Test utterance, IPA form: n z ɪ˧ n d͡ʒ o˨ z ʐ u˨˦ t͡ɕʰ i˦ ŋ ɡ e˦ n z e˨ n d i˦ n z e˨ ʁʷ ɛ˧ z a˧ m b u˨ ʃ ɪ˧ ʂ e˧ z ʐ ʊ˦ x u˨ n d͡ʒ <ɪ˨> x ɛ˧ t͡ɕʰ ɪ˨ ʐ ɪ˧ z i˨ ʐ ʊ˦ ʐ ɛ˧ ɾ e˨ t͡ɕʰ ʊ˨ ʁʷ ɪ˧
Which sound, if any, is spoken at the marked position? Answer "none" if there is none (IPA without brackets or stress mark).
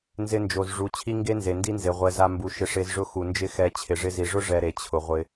ɪ˦